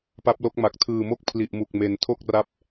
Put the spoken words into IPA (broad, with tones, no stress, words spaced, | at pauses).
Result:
pa˦˥p̚lo˦˥k̚ma˨˩k̚ tʰɯː˨˩mo˥˩k̚ pʰli˨˩ʔ mu˨˩k̚me˩˦ntʰo˥˩k̚ ra˦˥p̚